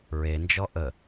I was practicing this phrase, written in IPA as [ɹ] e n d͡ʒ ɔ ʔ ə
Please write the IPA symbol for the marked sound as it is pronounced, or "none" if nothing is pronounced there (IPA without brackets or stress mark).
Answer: ɹ